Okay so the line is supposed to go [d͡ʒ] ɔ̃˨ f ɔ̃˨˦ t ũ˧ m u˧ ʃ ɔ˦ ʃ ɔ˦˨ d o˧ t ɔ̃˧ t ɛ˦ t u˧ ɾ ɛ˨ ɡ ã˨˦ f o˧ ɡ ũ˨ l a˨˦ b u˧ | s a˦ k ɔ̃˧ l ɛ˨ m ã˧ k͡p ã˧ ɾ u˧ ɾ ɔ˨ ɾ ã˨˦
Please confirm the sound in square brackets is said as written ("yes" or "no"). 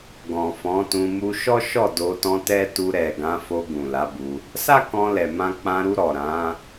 no